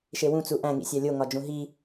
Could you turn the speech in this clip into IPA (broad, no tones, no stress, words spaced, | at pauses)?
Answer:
ʃewũ t͡suʔæ̃ ŋḭsʲælʲo ŋɒd͡ʒũɦi